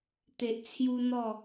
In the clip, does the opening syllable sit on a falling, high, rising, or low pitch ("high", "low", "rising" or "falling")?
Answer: low